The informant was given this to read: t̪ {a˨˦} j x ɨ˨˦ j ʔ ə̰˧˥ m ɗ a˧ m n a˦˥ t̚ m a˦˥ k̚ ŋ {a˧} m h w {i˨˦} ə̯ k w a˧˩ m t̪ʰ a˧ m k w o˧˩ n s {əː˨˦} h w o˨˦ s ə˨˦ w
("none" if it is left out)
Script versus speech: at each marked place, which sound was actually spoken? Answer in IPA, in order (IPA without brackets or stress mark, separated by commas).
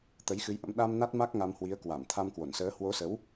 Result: ə˨˦, a˧, i˨˦, əː˨˦